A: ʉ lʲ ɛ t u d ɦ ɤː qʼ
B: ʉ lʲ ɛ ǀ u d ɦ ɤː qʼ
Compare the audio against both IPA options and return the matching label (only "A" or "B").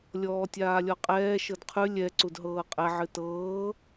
B